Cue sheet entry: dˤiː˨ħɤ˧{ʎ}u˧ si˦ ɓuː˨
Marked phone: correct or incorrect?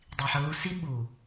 incorrect